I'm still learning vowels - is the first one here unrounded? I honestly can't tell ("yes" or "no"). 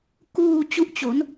no